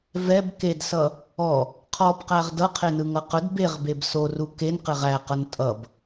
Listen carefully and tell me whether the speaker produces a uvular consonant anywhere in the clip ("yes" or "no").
yes